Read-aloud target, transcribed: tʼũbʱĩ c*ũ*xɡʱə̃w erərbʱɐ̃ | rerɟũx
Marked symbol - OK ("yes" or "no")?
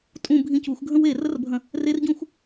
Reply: no